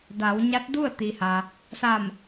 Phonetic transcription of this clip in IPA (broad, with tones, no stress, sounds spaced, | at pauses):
d a˩˧ w ɲ a˧˥ t̚ d u˥˨ ə̯ t̪ i˩ h a˩ | s a˧˩ m